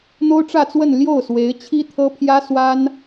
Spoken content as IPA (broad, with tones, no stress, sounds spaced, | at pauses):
n̪ o˥ ʊ̯ ʈ͡ʂ ä˥˧ t͡s w ə˥˧ n l j o˥˩ ʊ̯ s w e˧˥ ɪ̯ t͡ɕʰ i˥ t̪ʰ ɤ˥ pʰ j ä˥ s w a˥ n